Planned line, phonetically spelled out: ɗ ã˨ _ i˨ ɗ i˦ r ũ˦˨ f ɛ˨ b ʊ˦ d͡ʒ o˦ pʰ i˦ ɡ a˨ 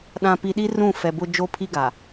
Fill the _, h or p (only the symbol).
p